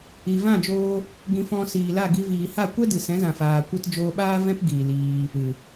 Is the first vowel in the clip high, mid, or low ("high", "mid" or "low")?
high